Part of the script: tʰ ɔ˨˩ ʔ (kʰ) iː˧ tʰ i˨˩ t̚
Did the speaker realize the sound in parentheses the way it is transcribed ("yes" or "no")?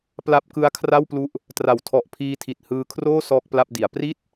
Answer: no